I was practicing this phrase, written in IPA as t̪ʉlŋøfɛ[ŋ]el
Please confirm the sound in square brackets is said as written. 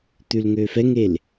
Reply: yes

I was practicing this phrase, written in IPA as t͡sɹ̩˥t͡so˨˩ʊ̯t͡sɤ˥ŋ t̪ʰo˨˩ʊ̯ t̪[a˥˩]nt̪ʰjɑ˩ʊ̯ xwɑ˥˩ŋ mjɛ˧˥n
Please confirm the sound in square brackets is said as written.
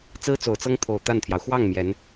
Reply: yes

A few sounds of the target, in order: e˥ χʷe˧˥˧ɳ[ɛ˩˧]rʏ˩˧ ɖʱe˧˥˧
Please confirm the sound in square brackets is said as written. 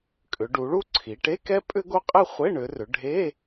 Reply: no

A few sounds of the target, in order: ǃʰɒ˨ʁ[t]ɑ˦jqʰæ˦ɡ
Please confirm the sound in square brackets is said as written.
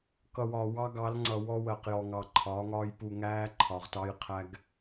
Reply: yes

